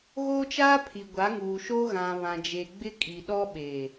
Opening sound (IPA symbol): ɣ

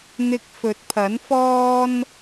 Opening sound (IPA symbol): n̪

